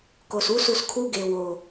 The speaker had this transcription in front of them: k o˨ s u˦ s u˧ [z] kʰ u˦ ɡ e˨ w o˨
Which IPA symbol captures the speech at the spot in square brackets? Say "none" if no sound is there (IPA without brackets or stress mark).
s